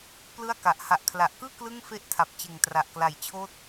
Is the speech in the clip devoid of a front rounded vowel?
yes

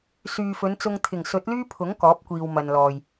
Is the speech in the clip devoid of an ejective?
yes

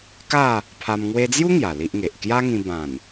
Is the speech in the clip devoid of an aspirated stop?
no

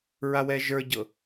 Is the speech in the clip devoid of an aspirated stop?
yes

